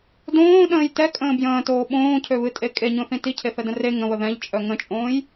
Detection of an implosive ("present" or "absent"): present